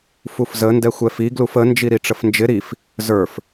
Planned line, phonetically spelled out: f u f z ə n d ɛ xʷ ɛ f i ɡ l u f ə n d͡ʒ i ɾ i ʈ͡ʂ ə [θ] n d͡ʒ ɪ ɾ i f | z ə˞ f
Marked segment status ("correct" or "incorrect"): incorrect